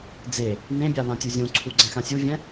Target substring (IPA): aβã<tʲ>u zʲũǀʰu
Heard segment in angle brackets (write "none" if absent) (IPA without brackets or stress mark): tʲ